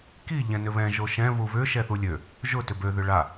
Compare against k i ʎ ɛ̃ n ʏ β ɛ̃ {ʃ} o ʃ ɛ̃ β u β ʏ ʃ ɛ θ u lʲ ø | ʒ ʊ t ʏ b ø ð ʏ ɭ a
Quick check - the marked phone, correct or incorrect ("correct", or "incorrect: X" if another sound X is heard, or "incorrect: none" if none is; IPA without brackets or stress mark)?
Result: incorrect: ʒ